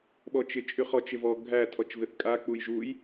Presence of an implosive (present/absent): present